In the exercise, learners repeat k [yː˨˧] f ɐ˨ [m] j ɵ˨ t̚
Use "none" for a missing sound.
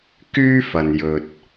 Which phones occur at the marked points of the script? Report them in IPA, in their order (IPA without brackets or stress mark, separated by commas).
yː˥, n